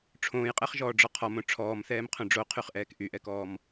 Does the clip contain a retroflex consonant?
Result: yes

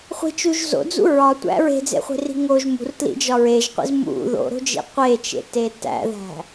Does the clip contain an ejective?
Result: no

